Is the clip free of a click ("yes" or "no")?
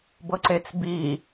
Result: no